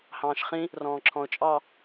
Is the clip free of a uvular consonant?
no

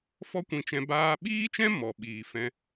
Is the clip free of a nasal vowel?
no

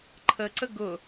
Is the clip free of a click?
no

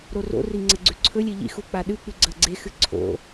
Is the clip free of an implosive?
no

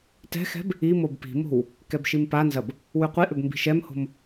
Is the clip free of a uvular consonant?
no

